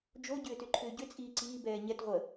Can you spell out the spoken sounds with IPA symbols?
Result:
d͡ʒo ɟʏːtʏǃʰʏːɟʏ t͡sʼiːǀiː bɛːɲɛt ʁʷə

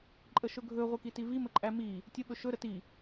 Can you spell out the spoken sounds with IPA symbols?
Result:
ǃʼəʃɵɡʱɵ ʁʷekitivi məǃʼæmi | tʲə ɓɵʃɵ ɾəti

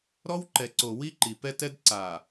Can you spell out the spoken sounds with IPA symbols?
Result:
ɾɔ˦wǃɛ˨ǀo˨ wi˦ǃi˨pɛ˦tɛ˦d ǀa˨

